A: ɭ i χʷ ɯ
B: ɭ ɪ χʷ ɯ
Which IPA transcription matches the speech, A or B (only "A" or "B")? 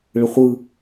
B